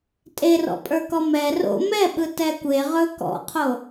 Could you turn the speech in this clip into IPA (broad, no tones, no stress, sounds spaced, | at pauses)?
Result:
tʼ e r ɔ̰ pʼ ə˞ k ɔ m ɛ r o̰ m ɛ ɓ ɯ t ɛ kʷ e ʁ ɵ k ɔ̰ qʰ o